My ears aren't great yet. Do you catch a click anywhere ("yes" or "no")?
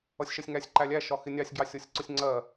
yes